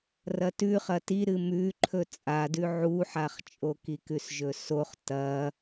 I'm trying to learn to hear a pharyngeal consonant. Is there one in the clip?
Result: yes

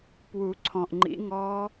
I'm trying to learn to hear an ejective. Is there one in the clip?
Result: no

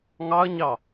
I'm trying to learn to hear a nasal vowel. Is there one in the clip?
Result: no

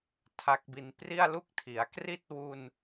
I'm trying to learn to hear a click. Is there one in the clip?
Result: no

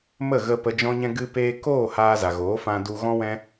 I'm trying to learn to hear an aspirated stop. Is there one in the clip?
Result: no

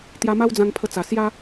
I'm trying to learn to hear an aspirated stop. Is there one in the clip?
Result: yes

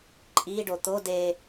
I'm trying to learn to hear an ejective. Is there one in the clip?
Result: yes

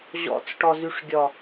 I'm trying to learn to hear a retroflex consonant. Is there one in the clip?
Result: yes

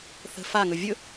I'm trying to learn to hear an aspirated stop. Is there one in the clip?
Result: no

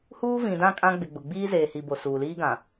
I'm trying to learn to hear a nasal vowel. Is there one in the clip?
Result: yes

